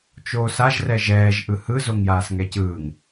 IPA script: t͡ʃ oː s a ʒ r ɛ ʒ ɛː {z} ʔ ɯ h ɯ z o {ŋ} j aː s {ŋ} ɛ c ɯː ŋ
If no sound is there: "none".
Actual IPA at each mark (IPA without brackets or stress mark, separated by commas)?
ʒ, ŋ, ŋ